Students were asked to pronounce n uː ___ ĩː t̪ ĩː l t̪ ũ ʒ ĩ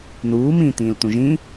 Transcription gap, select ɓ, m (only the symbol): m